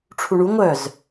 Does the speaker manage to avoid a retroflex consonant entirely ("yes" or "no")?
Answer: no